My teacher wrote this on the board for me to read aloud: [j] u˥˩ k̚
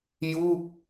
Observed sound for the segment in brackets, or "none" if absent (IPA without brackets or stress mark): j